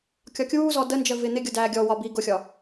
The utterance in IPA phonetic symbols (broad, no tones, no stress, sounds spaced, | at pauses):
kʲ ɒ kʲ uː z ɔ d ə n d͡ʒ ɜ v ɪ n̪ ɪ ɡʲ ʊ d æː ɡʲ ɔ w ɒ b iː ɡ ʊ xʲ ɒ